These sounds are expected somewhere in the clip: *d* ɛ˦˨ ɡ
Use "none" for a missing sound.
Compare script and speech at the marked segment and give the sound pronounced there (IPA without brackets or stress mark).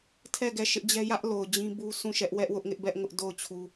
tʰ